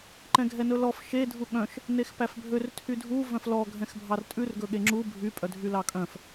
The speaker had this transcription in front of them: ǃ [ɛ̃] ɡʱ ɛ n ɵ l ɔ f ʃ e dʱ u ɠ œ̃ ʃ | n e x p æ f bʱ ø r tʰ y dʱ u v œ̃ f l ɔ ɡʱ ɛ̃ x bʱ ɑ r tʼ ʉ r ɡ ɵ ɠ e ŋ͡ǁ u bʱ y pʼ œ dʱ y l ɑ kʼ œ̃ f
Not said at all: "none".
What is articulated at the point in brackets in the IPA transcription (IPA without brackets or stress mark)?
ɛ̃